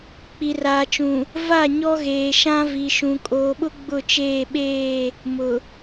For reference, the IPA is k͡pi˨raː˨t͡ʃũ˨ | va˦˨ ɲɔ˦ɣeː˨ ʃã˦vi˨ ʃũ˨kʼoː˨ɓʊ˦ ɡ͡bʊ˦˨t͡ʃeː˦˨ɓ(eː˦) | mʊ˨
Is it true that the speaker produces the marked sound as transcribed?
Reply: no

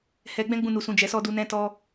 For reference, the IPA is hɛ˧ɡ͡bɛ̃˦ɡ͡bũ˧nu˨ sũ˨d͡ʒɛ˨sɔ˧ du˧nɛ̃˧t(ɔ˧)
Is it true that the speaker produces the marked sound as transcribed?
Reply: yes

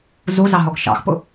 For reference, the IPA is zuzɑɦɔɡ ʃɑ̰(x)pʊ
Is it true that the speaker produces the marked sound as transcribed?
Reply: yes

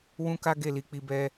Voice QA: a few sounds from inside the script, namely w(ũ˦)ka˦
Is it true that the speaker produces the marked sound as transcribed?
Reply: yes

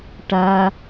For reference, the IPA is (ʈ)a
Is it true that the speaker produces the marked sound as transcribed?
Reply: yes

